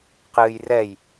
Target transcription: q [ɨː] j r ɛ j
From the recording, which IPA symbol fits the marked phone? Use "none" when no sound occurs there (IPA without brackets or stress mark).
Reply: ɨː